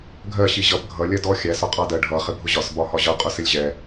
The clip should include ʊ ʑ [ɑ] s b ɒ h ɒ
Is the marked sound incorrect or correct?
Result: incorrect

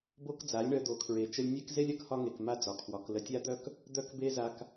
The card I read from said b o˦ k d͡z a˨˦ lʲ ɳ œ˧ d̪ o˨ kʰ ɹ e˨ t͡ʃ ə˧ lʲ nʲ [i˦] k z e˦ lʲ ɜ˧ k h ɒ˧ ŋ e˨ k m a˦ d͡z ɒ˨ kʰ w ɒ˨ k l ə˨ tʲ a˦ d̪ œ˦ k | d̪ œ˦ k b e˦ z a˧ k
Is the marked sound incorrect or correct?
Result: incorrect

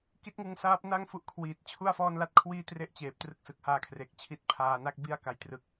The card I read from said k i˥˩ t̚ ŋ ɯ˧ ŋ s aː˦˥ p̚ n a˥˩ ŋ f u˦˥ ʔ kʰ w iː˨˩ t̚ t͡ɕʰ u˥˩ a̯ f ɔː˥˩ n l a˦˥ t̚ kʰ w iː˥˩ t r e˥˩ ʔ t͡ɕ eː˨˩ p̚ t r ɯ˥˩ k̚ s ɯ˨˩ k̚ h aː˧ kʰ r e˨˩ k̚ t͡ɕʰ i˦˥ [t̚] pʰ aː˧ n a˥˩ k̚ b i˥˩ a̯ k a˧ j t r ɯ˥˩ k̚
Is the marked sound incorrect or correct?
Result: correct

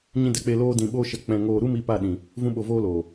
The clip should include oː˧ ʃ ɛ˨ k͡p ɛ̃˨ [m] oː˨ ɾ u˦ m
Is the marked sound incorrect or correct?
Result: incorrect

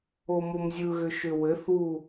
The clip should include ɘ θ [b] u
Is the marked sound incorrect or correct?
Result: incorrect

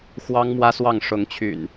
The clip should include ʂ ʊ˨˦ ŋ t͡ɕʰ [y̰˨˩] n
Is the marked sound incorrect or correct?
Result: correct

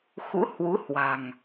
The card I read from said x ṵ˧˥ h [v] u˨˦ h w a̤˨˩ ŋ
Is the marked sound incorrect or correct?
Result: incorrect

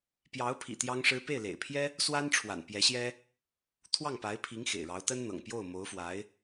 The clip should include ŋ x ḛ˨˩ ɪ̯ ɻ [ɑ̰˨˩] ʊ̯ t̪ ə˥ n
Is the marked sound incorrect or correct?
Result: incorrect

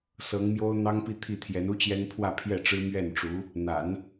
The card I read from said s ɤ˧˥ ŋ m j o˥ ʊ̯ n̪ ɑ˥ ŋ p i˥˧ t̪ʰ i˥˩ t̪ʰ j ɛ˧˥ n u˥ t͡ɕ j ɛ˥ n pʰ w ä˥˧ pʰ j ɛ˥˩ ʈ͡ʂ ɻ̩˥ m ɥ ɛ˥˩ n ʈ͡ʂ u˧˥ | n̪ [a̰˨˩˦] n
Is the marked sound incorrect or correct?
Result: correct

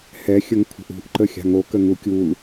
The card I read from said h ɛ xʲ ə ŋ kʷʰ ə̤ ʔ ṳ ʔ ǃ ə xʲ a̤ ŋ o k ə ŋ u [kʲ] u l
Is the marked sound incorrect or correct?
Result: correct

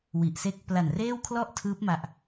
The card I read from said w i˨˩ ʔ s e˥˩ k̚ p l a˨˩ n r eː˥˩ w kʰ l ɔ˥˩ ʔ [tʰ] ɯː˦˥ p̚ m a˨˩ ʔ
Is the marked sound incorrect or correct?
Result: correct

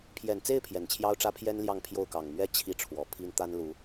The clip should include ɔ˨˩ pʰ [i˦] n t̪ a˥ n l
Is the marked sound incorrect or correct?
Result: incorrect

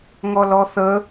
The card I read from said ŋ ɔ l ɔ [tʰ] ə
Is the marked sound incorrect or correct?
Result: incorrect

